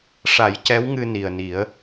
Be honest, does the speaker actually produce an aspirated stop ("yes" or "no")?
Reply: no